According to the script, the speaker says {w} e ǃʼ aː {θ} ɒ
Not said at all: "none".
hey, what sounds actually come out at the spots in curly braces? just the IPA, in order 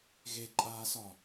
ɣ, s

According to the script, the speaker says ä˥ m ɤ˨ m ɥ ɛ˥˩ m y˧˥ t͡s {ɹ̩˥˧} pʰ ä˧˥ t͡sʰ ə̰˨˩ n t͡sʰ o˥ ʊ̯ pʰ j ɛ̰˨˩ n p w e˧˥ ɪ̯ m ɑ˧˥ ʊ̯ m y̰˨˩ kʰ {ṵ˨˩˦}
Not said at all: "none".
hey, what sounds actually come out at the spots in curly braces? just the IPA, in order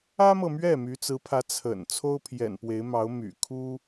ɹ̩˧˥, u˥

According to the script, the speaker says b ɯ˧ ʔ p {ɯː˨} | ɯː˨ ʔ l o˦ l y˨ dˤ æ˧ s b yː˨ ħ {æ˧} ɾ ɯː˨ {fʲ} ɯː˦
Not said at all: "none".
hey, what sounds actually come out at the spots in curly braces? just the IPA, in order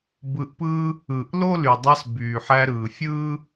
ɯː˦, æ˧, fʲ

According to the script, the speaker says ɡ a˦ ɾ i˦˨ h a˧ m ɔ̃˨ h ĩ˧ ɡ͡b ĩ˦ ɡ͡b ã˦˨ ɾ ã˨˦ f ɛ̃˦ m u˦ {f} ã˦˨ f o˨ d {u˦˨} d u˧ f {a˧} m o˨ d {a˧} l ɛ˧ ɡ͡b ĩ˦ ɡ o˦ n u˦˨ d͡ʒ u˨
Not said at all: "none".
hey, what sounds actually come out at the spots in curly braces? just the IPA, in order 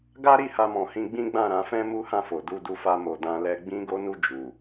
h, u˧, a˧, ã˧

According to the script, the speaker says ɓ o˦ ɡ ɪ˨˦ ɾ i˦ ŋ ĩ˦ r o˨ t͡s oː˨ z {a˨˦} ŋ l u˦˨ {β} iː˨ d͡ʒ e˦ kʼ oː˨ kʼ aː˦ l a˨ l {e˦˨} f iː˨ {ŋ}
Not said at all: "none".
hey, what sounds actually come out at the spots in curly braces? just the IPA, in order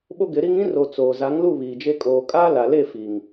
a˨˦, β, e˦˨, ŋ

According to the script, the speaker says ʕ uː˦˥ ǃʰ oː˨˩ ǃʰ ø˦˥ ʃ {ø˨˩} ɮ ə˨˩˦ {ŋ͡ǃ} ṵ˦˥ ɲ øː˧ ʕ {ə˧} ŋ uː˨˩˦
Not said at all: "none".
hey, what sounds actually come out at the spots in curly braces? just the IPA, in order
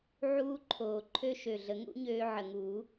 ø˨˩, ŋ, ə˨˩

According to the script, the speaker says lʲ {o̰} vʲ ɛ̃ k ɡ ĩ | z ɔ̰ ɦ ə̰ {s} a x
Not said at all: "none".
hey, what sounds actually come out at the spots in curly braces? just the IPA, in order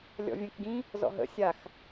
ɔ̰, sʲ

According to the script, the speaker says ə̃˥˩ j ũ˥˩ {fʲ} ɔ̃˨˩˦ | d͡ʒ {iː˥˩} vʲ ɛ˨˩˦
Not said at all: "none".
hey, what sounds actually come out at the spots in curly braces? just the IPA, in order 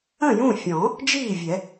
fʲ, iː˥˩

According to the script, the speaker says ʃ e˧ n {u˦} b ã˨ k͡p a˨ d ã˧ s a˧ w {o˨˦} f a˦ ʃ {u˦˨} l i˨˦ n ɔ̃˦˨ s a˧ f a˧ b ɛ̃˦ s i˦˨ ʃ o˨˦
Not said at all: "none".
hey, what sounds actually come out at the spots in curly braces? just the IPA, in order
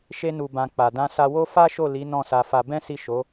u˨, o˦, o˦˨

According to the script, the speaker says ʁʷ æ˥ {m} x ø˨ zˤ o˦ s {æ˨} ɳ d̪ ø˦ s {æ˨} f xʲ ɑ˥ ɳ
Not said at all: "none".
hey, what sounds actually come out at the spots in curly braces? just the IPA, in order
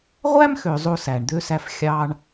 m, æ˨, æ˦

